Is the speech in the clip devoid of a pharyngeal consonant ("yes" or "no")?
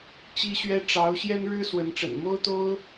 yes